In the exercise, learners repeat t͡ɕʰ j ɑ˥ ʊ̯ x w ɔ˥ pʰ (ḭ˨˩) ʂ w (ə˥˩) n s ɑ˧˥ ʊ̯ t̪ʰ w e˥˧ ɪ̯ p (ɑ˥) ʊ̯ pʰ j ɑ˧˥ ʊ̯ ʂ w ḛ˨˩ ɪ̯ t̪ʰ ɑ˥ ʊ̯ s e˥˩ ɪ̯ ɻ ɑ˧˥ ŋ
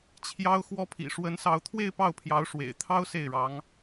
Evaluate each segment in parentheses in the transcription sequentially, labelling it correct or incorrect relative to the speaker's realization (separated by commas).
correct, incorrect, incorrect